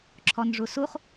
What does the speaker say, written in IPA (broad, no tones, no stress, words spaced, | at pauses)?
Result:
ǁʰɔnʐusuχ